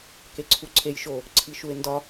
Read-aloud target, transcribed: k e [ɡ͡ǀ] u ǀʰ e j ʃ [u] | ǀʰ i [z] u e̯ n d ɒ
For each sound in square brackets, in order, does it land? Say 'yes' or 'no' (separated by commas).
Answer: no, no, no